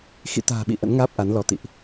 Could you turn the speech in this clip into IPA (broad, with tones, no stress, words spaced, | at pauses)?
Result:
xḭ˧˨t̪a̤ː˨˩ɓḭ˧˨ ʔə̰˧˥nŋaː˦˥p̚ʔa˨˦nlɔ˨˦ t̪ḭ˧˨ʔ